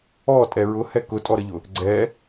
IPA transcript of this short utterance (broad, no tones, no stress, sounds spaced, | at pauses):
ɔ tʼ ɛ ɹ ʊ h ɛ k ʊ tʼ ɔ ɾ ə ʎ ʊ | ɡ͡ǀ ɛ